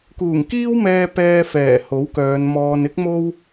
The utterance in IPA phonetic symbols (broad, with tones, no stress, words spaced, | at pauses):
kuː˨˩ŋkiː˥wmɛː˧ pɛː˧fɛː˨˩ ho˨˥wkœː˨˧nmɔː˧n ɪ˥k̚ mo˥w